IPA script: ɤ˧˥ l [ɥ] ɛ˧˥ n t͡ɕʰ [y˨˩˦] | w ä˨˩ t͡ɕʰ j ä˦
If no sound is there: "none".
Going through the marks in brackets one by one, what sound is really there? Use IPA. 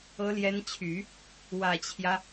j, y˨˩˦

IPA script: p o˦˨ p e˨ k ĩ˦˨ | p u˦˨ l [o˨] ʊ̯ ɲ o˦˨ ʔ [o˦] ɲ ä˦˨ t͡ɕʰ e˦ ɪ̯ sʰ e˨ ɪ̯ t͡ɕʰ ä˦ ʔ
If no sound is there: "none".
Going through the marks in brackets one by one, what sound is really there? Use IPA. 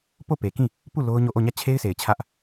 o˦, o˦˨

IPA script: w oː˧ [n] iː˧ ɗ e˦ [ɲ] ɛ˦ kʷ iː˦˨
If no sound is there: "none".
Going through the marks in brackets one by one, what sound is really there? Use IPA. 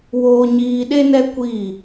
ɲ, n

